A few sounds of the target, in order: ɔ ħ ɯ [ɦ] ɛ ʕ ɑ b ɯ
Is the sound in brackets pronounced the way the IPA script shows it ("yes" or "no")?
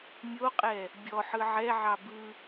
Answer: no